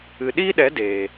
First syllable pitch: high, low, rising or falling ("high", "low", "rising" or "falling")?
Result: low